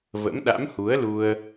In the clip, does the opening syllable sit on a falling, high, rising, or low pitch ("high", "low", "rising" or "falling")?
rising